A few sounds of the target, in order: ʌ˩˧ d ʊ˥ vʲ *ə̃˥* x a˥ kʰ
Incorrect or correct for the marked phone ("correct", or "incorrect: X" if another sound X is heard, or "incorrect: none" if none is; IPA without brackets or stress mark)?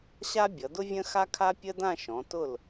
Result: correct